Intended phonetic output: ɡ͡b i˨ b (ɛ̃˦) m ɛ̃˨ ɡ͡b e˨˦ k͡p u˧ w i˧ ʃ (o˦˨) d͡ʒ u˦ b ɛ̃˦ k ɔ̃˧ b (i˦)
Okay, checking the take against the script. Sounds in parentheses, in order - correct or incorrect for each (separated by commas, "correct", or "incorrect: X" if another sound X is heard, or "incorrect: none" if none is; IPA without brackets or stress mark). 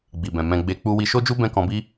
incorrect: ɛ̃˨, incorrect: o˦, correct